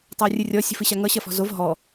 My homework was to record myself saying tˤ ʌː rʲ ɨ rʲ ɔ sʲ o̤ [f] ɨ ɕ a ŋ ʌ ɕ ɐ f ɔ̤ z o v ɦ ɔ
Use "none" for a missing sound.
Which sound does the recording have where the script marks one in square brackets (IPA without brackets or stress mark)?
f